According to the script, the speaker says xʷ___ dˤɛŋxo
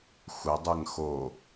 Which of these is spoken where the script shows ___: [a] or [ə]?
ə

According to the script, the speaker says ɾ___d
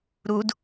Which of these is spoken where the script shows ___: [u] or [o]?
u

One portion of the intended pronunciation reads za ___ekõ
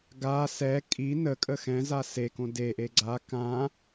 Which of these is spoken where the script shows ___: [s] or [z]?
s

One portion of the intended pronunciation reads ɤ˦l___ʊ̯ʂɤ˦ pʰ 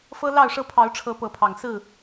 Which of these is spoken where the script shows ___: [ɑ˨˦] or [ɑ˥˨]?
ɑ˥˨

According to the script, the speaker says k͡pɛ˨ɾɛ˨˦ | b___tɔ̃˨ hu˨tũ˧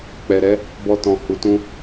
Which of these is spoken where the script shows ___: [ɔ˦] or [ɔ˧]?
ɔ˧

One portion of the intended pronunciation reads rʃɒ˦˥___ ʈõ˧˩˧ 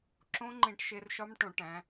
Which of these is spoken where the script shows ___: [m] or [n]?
m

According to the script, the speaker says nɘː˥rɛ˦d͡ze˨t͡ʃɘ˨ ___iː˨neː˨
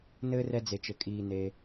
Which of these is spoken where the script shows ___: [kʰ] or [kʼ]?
kʼ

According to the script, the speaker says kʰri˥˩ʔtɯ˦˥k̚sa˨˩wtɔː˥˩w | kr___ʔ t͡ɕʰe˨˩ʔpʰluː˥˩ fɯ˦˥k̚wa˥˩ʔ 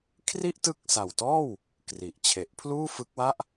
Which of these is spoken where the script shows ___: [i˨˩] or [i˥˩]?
i˨˩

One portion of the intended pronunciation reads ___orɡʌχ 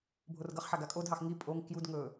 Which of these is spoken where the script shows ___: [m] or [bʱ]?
bʱ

